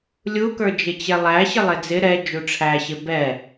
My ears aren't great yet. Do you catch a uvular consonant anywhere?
no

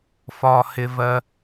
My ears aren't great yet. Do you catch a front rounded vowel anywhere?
no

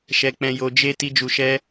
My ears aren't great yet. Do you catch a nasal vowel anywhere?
yes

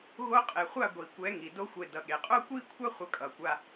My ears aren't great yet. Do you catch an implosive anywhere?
yes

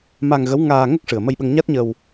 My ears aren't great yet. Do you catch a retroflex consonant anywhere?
yes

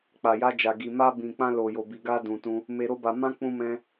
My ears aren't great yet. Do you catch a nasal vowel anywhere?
yes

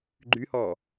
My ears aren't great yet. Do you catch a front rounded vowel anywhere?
yes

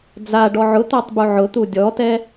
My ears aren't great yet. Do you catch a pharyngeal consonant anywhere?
yes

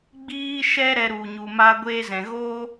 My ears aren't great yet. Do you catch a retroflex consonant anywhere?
no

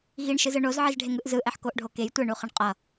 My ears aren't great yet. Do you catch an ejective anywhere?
yes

